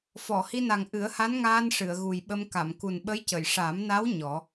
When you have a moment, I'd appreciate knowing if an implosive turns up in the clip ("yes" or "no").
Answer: yes